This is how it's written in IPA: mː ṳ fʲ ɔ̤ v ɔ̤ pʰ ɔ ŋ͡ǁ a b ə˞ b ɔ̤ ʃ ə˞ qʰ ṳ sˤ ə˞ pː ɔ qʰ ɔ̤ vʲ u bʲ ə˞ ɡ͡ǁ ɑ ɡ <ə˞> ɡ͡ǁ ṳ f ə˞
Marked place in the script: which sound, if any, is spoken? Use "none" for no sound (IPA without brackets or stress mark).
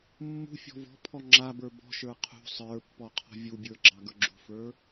ə˞